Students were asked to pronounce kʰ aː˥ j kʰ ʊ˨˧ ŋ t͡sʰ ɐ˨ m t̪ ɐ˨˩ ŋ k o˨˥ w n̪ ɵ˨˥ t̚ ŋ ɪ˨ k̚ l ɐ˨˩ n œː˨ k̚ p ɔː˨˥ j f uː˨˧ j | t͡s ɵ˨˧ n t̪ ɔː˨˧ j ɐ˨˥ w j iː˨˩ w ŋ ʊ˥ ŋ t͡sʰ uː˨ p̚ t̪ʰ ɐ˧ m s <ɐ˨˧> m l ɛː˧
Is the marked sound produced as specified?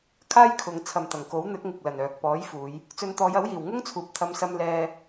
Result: no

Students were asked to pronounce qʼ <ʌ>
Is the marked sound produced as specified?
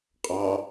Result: no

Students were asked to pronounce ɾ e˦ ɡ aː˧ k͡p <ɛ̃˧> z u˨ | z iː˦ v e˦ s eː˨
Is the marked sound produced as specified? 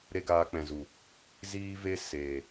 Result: no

